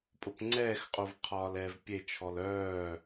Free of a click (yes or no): no